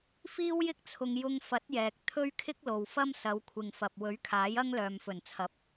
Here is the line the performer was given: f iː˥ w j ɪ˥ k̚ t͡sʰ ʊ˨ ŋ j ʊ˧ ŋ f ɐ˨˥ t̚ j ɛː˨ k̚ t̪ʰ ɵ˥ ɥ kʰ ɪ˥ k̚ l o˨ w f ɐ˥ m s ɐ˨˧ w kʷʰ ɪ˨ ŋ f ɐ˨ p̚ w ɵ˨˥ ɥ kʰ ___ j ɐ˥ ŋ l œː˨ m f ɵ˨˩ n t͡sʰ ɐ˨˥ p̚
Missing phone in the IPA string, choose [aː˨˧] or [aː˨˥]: aː˨˥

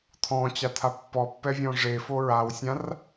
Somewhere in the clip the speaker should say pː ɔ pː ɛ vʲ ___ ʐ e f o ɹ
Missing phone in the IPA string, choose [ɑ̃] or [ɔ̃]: ɔ̃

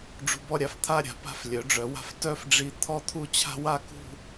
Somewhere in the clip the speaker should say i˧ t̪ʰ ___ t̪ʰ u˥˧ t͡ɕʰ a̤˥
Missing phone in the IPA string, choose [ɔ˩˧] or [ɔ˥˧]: ɔ˥˧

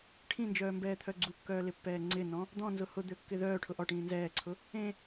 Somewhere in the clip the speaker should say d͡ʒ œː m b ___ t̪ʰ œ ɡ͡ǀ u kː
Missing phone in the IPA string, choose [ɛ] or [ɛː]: ɛː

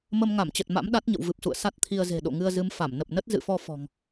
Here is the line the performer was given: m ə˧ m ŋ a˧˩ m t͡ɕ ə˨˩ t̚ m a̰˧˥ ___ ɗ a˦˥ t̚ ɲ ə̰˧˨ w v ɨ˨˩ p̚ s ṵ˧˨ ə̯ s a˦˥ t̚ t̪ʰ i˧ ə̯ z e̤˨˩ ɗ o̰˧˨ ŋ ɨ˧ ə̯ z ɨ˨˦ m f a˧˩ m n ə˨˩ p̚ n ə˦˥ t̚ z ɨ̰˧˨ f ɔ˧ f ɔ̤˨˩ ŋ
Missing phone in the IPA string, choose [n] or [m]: m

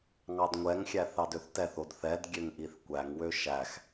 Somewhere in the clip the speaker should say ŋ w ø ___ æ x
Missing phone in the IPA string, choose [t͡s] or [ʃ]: ʃ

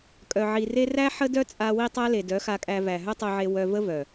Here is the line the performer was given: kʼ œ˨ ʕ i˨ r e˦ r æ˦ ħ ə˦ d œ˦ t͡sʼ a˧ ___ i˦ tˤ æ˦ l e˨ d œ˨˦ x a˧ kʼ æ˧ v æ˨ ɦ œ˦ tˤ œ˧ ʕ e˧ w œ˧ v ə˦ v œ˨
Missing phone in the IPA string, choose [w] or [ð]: w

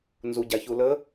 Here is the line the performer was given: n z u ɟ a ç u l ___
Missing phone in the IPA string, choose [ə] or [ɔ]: ə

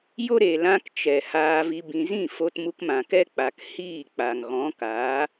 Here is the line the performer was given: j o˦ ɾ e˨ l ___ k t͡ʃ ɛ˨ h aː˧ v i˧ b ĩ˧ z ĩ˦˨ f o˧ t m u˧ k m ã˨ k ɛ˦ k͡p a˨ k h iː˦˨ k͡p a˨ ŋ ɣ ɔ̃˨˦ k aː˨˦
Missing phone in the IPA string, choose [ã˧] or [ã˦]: ã˧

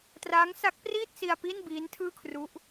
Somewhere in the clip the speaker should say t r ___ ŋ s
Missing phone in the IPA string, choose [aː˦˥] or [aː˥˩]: aː˦˥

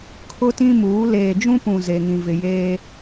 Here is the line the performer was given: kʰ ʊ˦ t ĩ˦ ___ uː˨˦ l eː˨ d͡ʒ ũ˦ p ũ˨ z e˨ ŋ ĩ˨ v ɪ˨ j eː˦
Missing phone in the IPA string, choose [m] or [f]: m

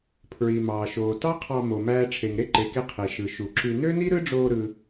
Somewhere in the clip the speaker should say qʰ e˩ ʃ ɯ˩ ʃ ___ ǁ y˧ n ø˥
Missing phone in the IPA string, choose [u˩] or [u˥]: u˩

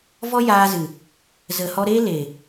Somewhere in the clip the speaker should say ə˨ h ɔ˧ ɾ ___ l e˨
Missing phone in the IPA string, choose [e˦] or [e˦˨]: e˦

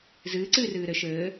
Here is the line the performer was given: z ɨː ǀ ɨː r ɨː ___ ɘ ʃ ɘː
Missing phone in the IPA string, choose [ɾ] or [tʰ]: ɾ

